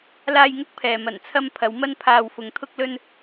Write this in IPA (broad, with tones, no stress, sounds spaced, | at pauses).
l aː˧ j ŋ ʊ˥ k̚ pʰ ɛː˨ m ɐ˨˩ n t͡sʰ ɐ˧ m pʰ ɐ˨˧ w m ɐ˧ n pʰ aː˨ w f ʊ˨ ŋ t̪ʰ ʊ˧ k̚ l ɵ˧ n